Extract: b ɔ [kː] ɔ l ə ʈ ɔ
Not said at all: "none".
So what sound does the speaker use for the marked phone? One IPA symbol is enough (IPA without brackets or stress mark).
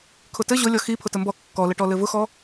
kː